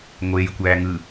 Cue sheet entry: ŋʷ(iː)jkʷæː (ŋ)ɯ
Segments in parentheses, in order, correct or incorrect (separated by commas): incorrect, correct